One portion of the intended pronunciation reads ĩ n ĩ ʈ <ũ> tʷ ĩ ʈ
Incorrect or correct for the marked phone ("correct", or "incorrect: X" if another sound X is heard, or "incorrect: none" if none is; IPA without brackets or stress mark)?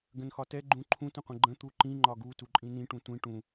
correct